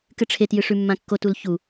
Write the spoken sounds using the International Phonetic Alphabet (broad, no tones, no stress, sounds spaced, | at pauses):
k ɨ ʈ͡ʂʰ e t j ɨ ʂ ʉ mː ã kː o t u l ç u